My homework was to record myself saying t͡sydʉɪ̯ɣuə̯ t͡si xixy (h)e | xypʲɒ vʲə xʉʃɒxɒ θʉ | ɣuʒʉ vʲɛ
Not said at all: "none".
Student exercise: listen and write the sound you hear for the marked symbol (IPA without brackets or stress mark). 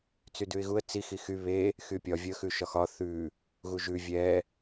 β